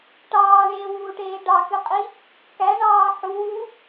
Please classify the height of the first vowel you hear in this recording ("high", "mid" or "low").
low